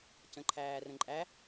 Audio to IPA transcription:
c ə̃ ǃʰ æː r ə̃ ǃʼ æ

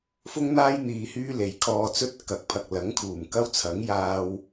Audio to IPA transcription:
f ʊ˥ ŋ n̪ aː˥ j n̪ iː˧ h yː˥ l e˨˧ j kʰ ɔː˧ t͡s ɵ˥ t̚ k ɐ˨˥ k̚ pʰ ɐ˨ k̚ l ɐ˨˥ ŋ kʰ uː˨˩ m k ɐ˥ w t͡sʰ ɐ˨˥ ŋ j aː˧ w

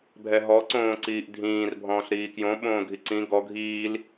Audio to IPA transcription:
bʱ ɛ ɦ ɔ ǀ õː ǀ iː ʔ dʱ ĩː r bʱ ɔ̃ː ɬ ɾ iː k j õ ɓ õː ɡʱ i ǀ ĩ ɡ ɔ ɡʱ iː l

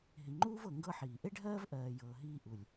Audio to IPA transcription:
ɦ i˨ ŋ͡ǃ uː˥ v ɤ˨ ŋ ɡ ɤ˦ ħ iː˩ ʔ e˥ ɖʱ ɜː˥ v ʔ ɜː˨ j ɤː˨ ɦ iː˦ ʔ u˩ lʲ

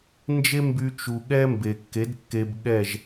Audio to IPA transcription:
n d͡ʒ e˦ m b y˧ t͡ʃ u˨ ɠ ɛ˦ m b e˨ kː e˨˦ d kː e˧ b ɠ ɛ˦˨ ʒ

